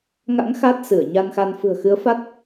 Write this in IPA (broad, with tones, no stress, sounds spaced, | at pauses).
ŋ a̰˧˥ ŋ x a˦˥ t̚ s ɨ˧˩ ə̯ ɲ a˧ n x a˧ n f ɨ̤˨˩ ə̯ x ɨ˨˦ ə̯ f a˦˥ t̚